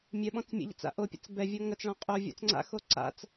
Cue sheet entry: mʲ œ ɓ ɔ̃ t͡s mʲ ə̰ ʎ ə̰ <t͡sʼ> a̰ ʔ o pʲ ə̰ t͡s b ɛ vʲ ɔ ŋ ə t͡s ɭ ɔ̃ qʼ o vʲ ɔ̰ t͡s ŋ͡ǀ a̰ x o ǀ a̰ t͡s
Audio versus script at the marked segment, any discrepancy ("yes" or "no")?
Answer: yes